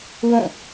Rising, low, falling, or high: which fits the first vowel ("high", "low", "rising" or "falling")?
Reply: falling